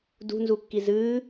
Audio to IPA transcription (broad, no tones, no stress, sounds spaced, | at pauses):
d ṳ n z u kː i z ɨː